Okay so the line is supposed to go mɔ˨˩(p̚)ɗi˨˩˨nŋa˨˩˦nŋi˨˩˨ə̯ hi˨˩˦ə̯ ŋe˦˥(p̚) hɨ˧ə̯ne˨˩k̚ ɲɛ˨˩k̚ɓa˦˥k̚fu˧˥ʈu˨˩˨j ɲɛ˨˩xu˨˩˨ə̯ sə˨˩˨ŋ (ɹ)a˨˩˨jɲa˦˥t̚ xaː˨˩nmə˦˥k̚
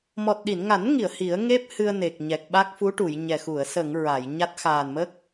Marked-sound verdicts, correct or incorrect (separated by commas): incorrect, correct, correct